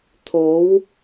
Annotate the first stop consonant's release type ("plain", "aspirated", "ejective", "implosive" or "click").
aspirated